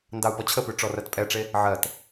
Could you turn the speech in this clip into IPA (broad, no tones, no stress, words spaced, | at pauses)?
ndɑu̯pɔt͡ɕʰəpʉ ʈ͡ʂɔrɜtpʼɛʈ͡ʂe | ʕɜt